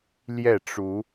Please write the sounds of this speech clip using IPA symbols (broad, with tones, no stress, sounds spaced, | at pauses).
l j ɛ˥˨ ʈ͡ʂ u˨˦